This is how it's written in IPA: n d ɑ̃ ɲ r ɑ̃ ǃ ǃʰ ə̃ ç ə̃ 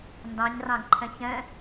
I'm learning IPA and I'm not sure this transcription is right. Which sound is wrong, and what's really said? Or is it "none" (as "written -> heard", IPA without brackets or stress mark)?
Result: ǃ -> ɡ